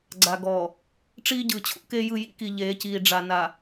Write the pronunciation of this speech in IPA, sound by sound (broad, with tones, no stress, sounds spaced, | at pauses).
ɡ͡ǀ a˨ ɡ ɔː˨ | ʈ͡ʂ iː˦ ɟ ɯː˨ t͡ɕʰ ṵ˦ k e˦ j ɯ˦˨ j ḭ˦ k i˨ ʎ eː˨˦ c iː˨ ɖ͡ʐ a˨ n a˨